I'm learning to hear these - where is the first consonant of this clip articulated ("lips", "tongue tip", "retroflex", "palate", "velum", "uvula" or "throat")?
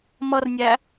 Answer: lips